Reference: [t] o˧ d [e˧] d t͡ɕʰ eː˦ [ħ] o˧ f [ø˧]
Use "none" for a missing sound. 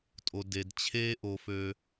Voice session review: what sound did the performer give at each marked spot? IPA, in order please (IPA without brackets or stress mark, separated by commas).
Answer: tʼ, e˧, ʔ, ø˧